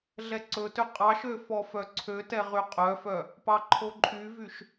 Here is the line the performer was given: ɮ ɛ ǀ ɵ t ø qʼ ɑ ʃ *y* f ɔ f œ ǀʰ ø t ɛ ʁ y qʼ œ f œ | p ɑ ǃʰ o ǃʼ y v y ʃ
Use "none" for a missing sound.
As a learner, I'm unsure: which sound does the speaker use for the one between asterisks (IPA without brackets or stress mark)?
ø